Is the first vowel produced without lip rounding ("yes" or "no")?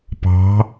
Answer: yes